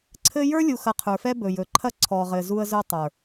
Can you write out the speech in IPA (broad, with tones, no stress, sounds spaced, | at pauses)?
ǀʰ ɘ˦ j ə˞˦ lʲ u˨ x ɐ˨ qʰ ə˞˨ f ɛ˦ b ɵ˨ j ɵ˨ ǃʰ ɐ˦ ǀʰ ɔ˨ ʁ ɘ˨ z u˦ ə̯ z ɵ˦ tˤ ə˞˨